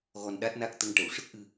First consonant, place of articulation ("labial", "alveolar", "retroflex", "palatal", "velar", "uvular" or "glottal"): velar